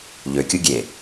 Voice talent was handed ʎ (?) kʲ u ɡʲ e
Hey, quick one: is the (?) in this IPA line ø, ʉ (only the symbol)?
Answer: ø